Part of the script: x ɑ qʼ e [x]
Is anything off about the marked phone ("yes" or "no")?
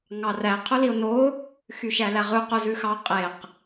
yes